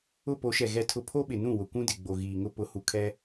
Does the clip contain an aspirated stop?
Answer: yes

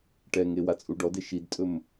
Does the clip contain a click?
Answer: no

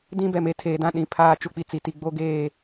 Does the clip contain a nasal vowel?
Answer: yes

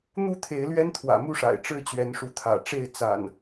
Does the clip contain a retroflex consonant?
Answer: yes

